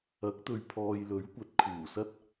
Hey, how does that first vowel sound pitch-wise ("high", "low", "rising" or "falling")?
rising